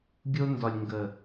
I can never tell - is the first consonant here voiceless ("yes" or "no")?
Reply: no